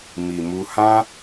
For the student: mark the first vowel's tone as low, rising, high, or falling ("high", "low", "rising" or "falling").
low